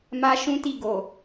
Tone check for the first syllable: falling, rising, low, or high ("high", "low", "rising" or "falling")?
high